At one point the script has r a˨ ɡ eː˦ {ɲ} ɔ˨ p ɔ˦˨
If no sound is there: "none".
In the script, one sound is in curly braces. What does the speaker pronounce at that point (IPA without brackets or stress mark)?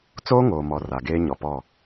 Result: ɲ